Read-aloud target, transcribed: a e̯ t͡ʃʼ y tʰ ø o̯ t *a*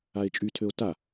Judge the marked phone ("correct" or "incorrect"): correct